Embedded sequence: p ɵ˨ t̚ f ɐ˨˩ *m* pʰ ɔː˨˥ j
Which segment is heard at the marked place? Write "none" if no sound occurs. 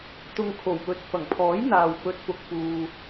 ŋ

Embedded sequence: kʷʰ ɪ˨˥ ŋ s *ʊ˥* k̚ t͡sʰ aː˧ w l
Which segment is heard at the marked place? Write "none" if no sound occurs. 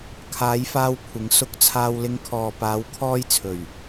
ʊ˧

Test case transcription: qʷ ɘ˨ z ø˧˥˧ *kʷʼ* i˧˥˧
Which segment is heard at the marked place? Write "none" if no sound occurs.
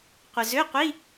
qʷ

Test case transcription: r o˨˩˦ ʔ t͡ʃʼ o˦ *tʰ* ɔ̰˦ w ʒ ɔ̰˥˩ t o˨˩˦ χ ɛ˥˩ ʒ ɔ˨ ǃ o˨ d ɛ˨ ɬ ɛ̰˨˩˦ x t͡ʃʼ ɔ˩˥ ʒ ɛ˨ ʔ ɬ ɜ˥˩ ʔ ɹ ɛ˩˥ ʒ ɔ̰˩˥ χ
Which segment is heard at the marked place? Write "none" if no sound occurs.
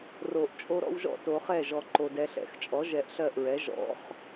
ɾ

